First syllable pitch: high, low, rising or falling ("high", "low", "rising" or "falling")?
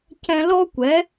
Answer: high